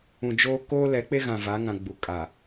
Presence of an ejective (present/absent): present